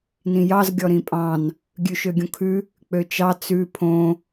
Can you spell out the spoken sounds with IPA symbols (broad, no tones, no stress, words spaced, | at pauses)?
nĩjɑz ɡʲɔɾĩpʼɑ̃n | ɡʲʉʃøɡʲõkʰʉ | k͡pøt͡ʃɑ t͡sʉ pʰõ